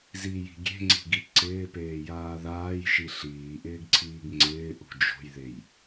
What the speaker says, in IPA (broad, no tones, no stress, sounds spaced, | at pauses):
z i j i̤ ɡʲ e̤ ŋ͡ǀ i̤ ɡ i ǀ ɪː p eː j aː ð aː j ʃ i ɬ iː ʔ ɪː ɡ ǀʰ iː ɡ ŋ͡ǀ ɪː ʔ ṳ d͡ʒ o̤ j ð e j